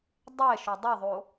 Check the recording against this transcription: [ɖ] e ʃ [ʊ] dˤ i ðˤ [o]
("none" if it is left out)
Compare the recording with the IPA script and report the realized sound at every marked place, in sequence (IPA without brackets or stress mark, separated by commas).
dˤ, ʊ, o